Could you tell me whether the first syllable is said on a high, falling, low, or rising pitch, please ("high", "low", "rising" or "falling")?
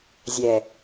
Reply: low